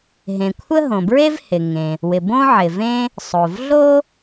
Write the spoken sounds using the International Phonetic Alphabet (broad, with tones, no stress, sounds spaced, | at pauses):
ɦ ẽ˩ kʷʰ ə˥ ɦ õ˩ b ɹ e˥ v h ɪ˩ ŋ ẽ˩ | w ɪ˩ b õ˥ ʕ ɪ˩ v ẽ˥ | sˤ o˩ v ɮ o˥